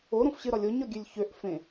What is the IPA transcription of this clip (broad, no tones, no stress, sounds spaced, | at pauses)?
o ɾ õ f ɕ ɨ ɾ ɒ lʲ o ɲ ɒ ɡʲ ø lʲ ç ø ʔ f ẽ